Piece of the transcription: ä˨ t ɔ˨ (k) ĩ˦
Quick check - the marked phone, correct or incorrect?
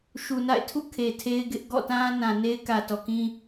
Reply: correct